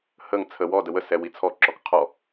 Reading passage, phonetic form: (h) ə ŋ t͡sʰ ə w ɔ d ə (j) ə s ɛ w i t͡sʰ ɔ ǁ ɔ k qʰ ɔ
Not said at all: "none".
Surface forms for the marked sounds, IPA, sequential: h, w

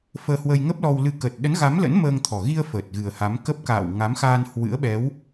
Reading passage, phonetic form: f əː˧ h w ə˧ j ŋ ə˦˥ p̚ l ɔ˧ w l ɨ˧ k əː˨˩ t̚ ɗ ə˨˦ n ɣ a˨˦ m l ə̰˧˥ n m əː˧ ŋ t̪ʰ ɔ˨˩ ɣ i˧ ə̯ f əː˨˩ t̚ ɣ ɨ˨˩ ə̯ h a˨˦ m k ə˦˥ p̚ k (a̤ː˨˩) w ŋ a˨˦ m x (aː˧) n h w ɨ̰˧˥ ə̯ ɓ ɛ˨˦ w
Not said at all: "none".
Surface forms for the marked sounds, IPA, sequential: a̰ː˧˨, aː˧

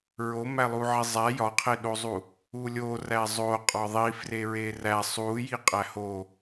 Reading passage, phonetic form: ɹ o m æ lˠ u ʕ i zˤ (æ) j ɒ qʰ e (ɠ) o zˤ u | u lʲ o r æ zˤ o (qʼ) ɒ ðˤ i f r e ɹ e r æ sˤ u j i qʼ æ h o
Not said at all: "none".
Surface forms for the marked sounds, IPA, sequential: æ, ɗ, qʼ

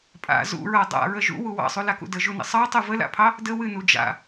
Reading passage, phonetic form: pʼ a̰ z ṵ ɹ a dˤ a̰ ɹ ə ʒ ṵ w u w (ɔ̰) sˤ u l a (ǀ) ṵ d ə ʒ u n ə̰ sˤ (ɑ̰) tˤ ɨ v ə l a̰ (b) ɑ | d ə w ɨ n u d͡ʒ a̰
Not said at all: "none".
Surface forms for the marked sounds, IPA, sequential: ɑ̰, k, ɑ, pʰ

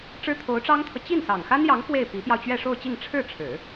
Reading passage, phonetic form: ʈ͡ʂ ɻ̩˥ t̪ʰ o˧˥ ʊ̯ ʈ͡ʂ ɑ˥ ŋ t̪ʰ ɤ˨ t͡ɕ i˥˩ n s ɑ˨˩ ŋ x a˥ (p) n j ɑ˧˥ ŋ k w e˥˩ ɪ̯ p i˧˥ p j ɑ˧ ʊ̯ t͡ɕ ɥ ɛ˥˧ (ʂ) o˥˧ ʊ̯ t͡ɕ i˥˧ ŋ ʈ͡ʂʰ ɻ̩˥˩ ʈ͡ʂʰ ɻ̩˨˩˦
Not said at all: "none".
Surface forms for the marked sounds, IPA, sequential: none, ʂ

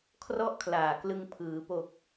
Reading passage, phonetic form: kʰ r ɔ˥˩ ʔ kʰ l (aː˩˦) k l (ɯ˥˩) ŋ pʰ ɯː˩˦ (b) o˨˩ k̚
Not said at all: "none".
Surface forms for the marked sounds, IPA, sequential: aː˨˩, ɯ˧, p

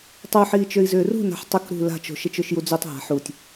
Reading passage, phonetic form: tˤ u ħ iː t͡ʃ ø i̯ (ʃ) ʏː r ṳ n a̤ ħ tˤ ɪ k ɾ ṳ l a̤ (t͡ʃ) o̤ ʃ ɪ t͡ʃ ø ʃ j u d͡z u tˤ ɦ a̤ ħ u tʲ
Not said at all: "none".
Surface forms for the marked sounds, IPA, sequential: z, t͡ʃ

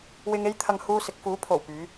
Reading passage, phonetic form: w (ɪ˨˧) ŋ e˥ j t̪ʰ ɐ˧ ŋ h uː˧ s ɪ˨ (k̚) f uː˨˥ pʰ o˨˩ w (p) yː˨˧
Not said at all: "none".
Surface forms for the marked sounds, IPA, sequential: ɪ˧, k̚, p

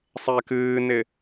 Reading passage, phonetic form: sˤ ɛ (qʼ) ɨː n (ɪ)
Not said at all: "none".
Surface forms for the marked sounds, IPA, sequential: k, ɪ

